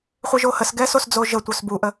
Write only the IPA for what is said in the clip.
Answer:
χʷ i ʒ o h ə s ɡ ɛ s o s d͡z o ʒ ə tʷ œ s b u ʔ ə

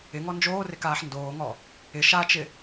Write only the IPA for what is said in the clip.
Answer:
ɪ ŋ ɔ n d͡ʒ oː r ɪ k aː ħ n d oː ŋ ɔ | ɪ ʃ a t͡ʃ ɪ

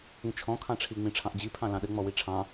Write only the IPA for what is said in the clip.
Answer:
ĩ t͡ʃʰ ɔ̃ kʰ ɑ̃ ʈ͡ʂʰ i ŋ͡m ĩ ʈ͡ʂʰ ɑ̃ ʔ d͡ʑ i pʰ ɑ̃ l ɑ̃ ɗ ɘ ŋ͡m ɔ w i ʈ͡ʂʰ ɑ̃

